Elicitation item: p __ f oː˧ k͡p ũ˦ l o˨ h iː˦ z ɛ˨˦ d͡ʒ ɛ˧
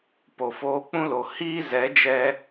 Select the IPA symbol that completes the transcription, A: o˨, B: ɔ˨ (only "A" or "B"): A